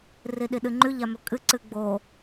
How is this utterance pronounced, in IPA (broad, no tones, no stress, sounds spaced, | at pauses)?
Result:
r i ɗ i ɗ ɨ ŋ͡ǃ ʉ ʎ a m ɵ kʼ ɨ ǀ ɨ ɡ͡b o